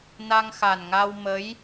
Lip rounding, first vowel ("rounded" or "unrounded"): unrounded